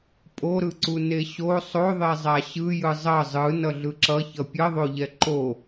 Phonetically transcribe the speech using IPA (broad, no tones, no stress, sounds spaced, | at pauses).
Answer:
pʼ o ɾ ɯ ǀ u n e ɕ o sˤ o ðˤ e zˤ a ɕ ɯ j ɯ zˤ ʌ zˤ ɯ n ʌ ɮ ɯ ǁ ʌ ç ʌ pʲ ʌ ðˤ o ʎ ɛ ǃ o